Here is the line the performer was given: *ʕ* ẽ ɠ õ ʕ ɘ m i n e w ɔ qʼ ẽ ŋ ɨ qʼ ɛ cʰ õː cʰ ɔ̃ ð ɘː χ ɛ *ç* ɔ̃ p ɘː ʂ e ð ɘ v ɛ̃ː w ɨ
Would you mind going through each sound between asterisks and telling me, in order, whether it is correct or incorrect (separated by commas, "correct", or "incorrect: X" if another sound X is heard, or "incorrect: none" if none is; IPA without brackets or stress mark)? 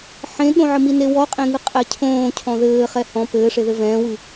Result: incorrect: ħ, incorrect: h